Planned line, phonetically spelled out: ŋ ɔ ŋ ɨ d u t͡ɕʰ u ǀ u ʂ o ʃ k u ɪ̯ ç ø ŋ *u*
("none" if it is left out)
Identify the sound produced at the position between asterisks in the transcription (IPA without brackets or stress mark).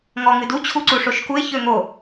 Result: o